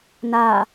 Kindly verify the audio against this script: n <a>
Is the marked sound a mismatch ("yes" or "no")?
no